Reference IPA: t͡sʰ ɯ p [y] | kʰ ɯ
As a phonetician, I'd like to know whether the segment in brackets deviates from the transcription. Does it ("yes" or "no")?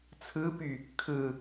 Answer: no